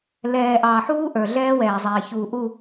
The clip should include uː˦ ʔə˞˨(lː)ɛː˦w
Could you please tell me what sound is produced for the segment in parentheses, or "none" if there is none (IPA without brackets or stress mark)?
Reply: ɮ